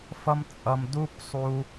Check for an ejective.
present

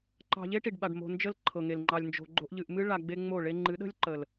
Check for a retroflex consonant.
present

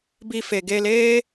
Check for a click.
absent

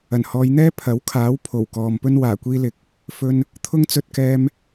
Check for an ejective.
absent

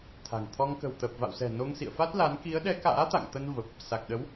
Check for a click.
absent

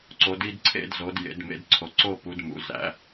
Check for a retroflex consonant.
absent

